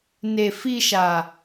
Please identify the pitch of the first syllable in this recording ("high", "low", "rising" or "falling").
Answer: low